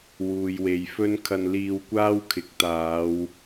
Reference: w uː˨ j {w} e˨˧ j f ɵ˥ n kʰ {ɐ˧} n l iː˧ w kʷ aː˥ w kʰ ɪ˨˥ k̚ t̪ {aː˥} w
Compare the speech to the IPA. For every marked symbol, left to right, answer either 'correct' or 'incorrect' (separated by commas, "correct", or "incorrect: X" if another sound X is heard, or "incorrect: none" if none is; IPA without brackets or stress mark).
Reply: correct, correct, incorrect: aː˨˧